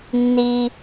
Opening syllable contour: high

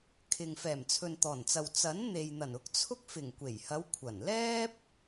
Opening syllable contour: low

